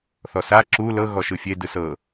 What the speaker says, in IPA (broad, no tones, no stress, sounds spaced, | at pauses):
θ ɔ s a ǁ u l ɤ ɣ ɔ ʃ ɯ fʲ e d ɯ s ɤ